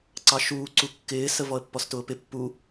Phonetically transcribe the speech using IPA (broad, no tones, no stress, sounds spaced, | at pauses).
ǀ ɑ ʃ uː ǀ u kː ɪː s ə v ɔ ə̯ pː ɔ s t ʊː p ɪ pː u